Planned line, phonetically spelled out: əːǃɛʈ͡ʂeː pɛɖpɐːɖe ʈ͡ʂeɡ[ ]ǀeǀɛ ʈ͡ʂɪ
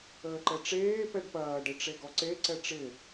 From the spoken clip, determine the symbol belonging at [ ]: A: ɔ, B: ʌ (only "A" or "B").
A